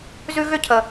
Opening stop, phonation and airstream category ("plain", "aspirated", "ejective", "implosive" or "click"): aspirated